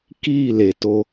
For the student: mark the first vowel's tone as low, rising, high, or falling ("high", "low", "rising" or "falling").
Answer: falling